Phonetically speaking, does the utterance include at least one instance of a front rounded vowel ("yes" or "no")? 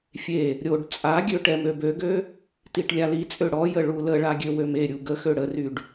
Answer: yes